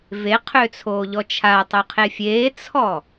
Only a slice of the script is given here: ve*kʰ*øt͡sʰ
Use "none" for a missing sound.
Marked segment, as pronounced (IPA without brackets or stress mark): qʰ